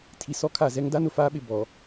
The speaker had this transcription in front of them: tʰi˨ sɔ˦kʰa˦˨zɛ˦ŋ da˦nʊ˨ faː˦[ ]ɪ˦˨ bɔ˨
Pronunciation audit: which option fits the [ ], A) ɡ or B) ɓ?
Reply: B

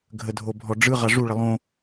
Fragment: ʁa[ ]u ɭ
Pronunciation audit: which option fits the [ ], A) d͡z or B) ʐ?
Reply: B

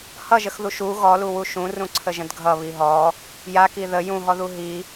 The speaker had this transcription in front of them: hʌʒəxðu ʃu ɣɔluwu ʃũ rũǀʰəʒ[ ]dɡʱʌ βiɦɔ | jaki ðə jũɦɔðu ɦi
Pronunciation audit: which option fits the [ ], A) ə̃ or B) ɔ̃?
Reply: A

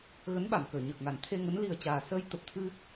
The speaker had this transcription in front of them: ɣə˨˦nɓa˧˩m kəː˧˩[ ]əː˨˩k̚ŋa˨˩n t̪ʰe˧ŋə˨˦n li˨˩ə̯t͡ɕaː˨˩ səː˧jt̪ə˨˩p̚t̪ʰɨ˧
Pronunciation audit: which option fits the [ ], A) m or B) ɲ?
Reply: B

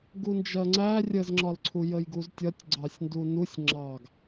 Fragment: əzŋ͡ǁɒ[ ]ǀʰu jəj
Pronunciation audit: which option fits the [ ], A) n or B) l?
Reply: B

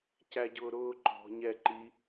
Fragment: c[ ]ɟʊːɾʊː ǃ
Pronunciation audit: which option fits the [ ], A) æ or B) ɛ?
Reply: A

